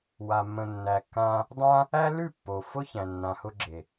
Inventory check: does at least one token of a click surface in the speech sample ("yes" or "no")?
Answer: yes